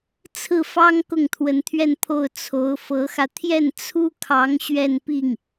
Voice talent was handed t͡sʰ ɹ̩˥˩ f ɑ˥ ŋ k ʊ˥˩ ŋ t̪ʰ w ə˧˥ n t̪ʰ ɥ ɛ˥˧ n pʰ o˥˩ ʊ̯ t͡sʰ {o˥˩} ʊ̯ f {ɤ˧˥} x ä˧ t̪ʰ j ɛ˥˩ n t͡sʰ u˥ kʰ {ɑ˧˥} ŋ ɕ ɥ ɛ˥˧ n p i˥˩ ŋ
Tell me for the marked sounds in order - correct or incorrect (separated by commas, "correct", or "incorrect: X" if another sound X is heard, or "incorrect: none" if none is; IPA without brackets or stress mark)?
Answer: incorrect: o˧˥, correct, correct